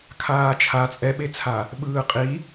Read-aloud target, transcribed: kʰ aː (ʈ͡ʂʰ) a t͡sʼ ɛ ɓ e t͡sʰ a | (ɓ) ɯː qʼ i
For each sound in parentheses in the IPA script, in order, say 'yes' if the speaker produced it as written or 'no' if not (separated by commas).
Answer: no, yes